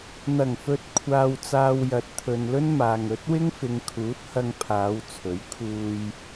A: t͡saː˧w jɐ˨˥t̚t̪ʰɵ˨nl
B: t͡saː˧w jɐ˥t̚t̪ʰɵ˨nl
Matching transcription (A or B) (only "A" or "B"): A